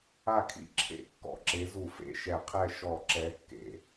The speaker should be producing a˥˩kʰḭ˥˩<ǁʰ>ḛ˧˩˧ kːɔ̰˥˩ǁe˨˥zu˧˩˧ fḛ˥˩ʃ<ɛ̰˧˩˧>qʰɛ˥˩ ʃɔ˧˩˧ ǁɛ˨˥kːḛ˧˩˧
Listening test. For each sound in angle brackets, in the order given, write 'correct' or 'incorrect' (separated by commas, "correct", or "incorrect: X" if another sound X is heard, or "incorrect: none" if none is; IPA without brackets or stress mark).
correct, incorrect: ɛ˧˩˧